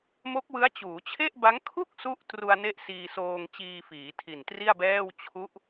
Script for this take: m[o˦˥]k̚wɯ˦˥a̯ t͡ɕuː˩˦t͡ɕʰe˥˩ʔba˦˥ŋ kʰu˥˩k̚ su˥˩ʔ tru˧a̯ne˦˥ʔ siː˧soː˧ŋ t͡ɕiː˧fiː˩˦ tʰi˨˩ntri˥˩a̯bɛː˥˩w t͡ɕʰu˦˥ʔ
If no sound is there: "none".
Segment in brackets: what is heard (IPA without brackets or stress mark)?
o˦˥